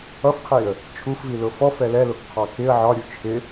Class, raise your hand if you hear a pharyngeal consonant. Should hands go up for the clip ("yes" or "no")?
yes